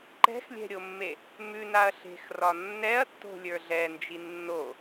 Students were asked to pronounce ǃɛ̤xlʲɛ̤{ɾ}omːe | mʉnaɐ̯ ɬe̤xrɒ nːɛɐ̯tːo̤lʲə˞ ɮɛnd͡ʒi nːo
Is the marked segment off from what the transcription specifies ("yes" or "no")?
yes